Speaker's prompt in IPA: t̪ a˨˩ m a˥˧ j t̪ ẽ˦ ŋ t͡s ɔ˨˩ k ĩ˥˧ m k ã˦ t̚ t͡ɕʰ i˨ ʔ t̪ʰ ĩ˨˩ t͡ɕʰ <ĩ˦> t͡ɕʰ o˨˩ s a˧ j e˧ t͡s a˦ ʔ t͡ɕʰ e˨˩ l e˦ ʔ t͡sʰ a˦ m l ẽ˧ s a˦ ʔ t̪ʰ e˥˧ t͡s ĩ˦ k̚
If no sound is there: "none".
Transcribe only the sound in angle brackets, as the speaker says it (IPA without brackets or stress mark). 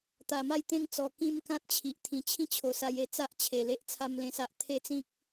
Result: ĩ˦